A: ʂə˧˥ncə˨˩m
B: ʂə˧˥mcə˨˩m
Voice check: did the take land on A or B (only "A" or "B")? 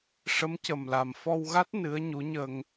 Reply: B